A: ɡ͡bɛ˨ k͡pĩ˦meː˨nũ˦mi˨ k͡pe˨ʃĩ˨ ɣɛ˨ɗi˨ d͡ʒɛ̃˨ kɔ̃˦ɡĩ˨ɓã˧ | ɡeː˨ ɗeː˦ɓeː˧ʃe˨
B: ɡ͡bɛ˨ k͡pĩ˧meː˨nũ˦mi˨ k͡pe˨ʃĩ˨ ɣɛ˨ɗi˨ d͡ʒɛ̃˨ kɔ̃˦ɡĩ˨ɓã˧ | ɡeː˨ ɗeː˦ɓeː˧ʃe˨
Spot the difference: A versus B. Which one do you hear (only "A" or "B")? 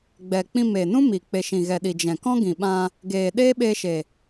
B